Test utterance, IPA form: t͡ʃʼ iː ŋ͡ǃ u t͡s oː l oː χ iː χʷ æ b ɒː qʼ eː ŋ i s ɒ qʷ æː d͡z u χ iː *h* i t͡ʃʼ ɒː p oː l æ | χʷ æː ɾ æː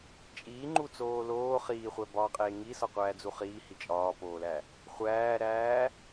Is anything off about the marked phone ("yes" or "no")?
no